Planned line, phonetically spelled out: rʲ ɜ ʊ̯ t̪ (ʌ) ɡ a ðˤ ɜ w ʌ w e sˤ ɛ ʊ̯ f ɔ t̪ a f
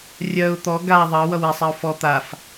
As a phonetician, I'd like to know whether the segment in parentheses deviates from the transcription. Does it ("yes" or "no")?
yes